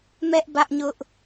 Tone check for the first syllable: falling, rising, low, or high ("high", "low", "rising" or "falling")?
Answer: high